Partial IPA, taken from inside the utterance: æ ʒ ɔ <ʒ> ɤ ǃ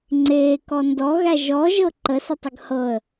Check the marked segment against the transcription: correct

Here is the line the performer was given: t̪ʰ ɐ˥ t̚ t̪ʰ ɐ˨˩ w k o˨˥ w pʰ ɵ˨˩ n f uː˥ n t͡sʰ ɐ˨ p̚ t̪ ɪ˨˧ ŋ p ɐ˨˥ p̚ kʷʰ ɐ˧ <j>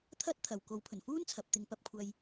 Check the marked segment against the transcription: correct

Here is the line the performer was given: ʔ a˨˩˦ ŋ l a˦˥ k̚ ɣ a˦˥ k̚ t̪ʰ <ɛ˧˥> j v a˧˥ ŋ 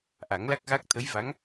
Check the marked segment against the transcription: incorrect: ə˧˥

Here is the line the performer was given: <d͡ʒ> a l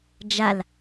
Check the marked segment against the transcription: correct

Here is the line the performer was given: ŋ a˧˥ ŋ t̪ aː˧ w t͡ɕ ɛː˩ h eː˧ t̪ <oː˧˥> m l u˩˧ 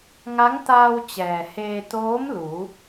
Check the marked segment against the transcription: correct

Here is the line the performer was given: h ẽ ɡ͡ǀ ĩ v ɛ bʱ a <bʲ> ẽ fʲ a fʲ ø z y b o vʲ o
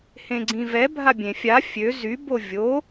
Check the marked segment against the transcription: correct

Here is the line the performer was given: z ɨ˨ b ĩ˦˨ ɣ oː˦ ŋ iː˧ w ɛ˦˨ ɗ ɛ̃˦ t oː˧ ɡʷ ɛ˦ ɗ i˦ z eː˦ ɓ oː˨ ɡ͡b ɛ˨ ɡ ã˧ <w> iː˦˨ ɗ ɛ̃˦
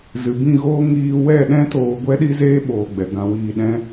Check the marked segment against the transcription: correct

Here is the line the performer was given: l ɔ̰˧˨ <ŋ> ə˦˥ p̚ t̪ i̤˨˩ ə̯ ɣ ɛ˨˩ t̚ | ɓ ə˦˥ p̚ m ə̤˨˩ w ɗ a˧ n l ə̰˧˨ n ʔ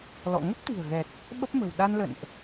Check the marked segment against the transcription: correct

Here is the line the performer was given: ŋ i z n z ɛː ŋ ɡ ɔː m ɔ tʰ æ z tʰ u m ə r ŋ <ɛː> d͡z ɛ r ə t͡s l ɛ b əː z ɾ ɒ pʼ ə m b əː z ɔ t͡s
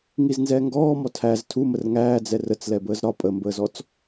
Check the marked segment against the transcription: incorrect: æː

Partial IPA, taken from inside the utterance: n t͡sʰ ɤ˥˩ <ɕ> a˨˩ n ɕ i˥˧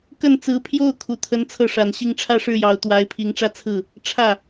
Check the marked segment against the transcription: incorrect: ʂ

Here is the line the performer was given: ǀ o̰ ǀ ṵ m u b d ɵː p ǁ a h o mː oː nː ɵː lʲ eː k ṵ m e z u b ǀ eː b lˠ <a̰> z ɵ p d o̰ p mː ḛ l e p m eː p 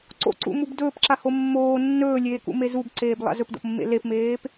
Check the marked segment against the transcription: correct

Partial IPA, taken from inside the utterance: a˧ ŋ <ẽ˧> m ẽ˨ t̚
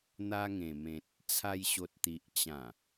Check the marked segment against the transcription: incorrect: ẽ˨˩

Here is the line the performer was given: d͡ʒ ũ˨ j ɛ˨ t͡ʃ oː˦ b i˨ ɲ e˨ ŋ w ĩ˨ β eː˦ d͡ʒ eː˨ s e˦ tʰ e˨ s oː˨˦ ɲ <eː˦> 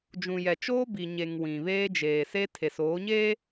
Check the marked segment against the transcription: correct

